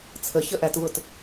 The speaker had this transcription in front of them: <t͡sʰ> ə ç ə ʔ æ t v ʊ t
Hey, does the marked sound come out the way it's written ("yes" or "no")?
yes